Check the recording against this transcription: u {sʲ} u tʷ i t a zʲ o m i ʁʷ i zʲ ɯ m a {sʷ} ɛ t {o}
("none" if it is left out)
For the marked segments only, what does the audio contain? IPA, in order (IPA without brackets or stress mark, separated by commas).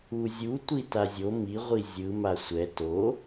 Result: zʲ, sʷ, o